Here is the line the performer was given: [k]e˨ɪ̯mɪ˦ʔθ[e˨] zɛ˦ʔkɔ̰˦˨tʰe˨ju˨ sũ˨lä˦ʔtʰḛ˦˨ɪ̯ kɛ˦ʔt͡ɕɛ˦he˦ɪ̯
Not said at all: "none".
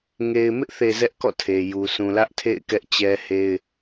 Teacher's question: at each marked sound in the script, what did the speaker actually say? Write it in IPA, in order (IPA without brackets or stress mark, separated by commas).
ŋ, e˨